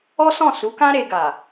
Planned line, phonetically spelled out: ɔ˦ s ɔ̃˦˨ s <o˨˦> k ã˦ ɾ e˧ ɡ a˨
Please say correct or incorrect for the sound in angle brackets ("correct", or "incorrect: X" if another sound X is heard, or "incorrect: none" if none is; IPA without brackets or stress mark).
incorrect: u˨˦